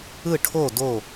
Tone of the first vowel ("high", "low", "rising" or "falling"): falling